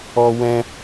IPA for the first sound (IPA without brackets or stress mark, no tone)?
ɔ